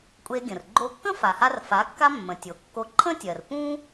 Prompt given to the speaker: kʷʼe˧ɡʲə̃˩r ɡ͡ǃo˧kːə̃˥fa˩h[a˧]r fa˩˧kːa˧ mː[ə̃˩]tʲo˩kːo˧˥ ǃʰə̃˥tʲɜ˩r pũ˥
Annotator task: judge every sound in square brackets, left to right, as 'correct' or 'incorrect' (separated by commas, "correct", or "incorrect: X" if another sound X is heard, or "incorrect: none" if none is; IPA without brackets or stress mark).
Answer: correct, correct